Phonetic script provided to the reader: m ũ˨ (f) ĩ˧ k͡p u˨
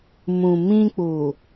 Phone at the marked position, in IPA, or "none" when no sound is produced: m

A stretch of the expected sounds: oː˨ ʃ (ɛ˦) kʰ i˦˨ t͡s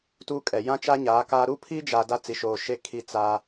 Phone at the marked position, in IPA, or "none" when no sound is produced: e˦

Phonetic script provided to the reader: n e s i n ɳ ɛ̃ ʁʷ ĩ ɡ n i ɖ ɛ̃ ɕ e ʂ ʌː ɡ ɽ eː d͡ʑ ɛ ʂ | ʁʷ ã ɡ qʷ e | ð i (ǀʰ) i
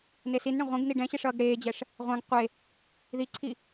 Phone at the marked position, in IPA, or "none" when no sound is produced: ǀʰ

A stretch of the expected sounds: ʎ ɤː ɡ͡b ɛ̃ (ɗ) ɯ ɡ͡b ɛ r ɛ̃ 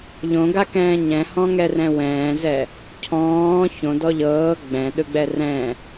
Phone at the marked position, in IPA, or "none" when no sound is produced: ɗ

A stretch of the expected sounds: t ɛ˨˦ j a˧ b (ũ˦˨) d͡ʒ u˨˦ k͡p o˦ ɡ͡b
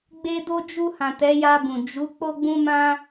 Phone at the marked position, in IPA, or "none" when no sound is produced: ũ˨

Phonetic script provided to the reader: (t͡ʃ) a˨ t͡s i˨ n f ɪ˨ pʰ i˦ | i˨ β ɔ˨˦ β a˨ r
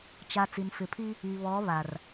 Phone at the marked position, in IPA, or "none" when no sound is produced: t͡ʃ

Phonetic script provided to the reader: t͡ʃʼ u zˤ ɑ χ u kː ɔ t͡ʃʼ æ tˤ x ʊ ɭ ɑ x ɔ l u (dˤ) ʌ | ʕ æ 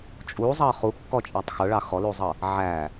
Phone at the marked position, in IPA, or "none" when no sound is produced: zˤ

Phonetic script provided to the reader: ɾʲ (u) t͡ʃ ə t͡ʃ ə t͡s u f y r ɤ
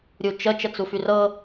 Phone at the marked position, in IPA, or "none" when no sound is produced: u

